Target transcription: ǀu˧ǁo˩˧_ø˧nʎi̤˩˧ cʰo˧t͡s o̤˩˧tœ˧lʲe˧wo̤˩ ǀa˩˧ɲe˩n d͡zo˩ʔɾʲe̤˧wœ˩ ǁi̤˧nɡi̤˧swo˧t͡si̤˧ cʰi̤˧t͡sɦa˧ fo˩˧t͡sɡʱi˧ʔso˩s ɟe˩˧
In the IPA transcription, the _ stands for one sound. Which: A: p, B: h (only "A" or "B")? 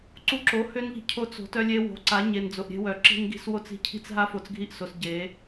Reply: B